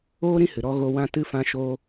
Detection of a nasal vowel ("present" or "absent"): present